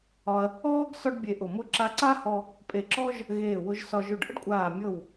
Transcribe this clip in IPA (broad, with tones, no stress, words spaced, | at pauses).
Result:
ɒ˧ɐ̯ | ɔː˥ɡ sɒ˥ɖbʲe˧ʔʊ˧˩ mʊ˧ ǁa˧ǀa˥hɔ˧ | pʼe˧˩ǁɔ˥ʒ | ɣeː˧˩wʊ˧ʒsɒ˧ʒ ʊ˧˩ɖʔə̰˥ɖkʷʼaː˧˩mʲɤ˧˩w